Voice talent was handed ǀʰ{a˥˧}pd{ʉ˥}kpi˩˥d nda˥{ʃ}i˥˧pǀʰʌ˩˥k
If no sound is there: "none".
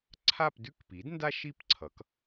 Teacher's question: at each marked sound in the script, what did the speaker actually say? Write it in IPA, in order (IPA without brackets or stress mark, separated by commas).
a˥˧, ʉ˥, ʃ